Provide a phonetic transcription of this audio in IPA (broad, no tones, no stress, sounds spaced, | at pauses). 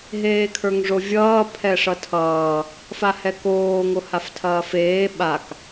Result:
ɦ eː kʰ ə˞ ŋ ʐ o vʲ ʌː pʰ ɛ ʂ ʌ tʰ ʌː | f a h ɛ k oː ŋ o h a f tʰ ɐː f eː ɓ a k